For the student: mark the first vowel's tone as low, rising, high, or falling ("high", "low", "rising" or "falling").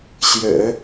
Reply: low